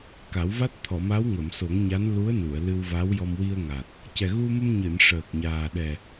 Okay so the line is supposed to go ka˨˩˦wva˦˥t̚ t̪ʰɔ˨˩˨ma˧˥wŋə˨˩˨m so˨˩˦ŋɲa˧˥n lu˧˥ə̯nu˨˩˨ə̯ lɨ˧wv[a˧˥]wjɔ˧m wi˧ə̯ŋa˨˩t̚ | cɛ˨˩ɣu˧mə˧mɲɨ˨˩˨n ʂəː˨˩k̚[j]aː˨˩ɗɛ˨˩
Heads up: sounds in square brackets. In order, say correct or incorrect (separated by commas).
correct, incorrect